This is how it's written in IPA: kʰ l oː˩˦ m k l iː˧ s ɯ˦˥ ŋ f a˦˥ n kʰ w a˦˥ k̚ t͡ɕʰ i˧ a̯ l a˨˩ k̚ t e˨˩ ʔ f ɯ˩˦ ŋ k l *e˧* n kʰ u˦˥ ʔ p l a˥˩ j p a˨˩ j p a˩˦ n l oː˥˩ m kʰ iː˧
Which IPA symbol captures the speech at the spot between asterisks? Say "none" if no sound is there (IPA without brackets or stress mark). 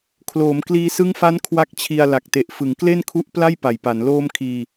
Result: e˥˩